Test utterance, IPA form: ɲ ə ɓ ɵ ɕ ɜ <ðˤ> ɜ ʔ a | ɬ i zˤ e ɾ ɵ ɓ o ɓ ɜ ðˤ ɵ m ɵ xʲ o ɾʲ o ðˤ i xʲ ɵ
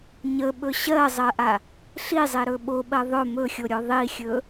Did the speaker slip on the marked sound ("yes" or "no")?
yes